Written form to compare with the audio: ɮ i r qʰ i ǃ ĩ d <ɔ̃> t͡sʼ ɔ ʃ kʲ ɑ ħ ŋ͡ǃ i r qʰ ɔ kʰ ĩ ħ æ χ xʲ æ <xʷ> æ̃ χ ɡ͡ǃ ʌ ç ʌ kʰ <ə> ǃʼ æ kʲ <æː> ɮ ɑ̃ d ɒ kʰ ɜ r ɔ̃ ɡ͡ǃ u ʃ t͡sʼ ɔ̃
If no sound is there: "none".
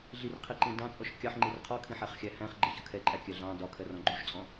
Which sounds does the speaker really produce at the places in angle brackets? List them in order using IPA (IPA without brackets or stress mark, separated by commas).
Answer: ɑ̃, h, ɛ, æ